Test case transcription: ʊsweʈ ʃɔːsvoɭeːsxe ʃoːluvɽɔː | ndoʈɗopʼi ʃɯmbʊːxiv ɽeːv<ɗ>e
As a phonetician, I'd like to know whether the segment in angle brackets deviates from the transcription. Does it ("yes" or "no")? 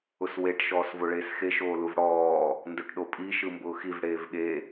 yes